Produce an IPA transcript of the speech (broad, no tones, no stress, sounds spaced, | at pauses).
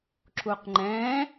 ǁ u q ŋ͡ǃ ɛ̃